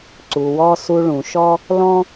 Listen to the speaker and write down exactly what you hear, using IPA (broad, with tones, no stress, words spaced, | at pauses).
ǀu˩wɔ˧ su˧ɭũ˩ʃɔ˥ | lɔ̃˥